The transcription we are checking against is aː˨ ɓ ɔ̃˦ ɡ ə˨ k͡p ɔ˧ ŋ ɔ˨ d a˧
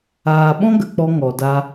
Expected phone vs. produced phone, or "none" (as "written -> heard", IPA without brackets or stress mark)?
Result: none